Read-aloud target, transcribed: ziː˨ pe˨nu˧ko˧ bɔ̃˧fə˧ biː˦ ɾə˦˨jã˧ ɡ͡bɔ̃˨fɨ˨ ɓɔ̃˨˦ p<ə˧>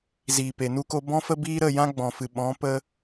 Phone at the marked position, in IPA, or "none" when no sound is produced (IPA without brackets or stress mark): ə˧